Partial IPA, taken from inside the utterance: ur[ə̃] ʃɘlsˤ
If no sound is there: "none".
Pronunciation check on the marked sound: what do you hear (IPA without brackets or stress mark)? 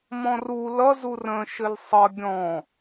ə̃